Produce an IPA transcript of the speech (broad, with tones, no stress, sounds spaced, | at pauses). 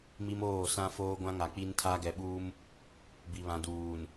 m i˦ m oː˦˨ s ã˦ f oː˦ ɡʷ ã˦ ŋ a˨ k͡p i˦ n tʰ a˦ ɡ ɛ˨ ɓ uː˦ m | b i˨ β ã˨ d uː˨ n